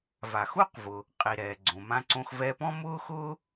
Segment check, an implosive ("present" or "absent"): absent